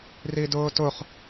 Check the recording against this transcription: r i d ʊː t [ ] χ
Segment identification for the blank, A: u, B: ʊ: B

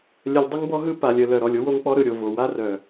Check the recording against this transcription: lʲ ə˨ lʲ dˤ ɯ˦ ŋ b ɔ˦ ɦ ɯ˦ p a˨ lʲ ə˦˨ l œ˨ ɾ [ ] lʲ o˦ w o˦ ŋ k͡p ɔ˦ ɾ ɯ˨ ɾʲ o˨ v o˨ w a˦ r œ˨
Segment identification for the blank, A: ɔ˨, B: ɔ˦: A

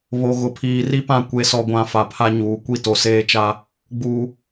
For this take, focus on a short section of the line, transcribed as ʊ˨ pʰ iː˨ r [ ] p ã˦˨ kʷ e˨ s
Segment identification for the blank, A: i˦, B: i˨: A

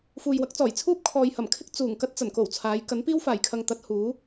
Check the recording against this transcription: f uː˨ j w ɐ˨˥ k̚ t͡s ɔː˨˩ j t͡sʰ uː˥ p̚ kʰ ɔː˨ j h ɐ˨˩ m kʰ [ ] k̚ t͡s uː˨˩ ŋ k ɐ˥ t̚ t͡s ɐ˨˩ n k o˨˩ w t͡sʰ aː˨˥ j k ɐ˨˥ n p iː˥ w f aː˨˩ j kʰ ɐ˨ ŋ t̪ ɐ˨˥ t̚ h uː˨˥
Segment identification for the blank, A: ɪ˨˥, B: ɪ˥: B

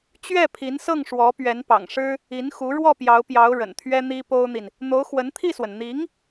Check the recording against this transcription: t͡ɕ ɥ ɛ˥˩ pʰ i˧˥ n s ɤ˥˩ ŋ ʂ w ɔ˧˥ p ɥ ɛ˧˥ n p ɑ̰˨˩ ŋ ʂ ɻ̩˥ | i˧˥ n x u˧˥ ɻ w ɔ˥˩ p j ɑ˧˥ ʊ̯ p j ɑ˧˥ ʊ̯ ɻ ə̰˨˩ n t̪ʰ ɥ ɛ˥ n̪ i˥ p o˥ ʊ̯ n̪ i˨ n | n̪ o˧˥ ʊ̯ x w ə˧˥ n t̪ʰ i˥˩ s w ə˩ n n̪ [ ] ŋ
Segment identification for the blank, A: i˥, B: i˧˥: B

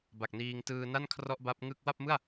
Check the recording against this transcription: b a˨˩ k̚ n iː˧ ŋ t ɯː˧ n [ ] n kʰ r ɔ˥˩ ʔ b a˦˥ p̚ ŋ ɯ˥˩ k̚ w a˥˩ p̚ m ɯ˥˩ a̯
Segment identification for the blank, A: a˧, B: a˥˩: B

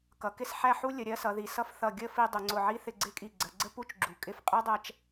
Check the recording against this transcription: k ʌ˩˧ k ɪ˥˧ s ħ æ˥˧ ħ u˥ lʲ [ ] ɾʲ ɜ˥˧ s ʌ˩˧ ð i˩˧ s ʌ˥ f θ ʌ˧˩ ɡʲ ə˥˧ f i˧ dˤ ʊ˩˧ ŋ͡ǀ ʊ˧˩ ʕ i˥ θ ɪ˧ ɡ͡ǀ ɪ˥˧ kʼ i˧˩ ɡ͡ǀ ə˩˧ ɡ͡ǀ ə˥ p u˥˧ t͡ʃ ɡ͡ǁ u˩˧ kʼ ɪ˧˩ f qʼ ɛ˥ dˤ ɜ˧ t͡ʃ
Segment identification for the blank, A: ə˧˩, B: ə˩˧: B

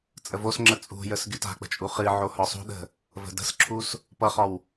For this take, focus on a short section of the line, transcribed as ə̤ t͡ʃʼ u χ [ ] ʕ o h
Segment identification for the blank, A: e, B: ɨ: B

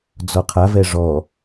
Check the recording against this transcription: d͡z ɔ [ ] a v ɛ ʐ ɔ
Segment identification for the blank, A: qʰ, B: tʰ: A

